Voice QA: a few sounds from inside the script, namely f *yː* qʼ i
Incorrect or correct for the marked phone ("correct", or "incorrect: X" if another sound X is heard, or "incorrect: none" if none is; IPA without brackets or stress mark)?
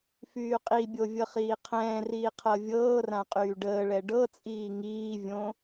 correct